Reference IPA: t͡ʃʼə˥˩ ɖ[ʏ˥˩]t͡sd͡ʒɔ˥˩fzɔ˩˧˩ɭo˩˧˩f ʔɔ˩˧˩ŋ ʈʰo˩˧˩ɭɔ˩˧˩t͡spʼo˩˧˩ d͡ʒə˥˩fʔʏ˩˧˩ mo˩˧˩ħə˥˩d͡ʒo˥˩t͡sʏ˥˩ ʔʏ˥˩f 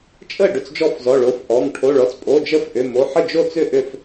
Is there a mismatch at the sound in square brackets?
no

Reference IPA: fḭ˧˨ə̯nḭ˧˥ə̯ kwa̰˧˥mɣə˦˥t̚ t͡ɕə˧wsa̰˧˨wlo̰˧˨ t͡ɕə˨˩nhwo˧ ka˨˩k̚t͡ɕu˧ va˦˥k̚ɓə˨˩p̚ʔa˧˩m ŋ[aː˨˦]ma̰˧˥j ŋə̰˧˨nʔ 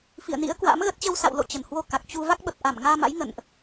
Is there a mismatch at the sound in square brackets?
yes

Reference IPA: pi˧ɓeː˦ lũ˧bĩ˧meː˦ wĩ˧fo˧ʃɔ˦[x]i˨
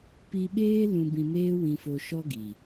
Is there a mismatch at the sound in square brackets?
yes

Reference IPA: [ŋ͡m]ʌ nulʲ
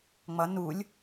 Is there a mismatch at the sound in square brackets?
no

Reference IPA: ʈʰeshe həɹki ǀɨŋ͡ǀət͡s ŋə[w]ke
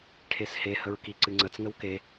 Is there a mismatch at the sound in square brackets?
no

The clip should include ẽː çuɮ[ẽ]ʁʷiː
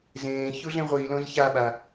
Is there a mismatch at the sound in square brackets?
no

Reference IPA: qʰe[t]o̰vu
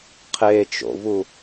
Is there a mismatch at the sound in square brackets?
yes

